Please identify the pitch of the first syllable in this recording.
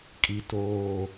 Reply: low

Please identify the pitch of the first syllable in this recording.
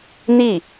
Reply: falling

